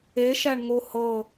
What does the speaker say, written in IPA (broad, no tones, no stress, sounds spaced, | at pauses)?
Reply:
e ʃ æ ɳ ŋ o h ɤ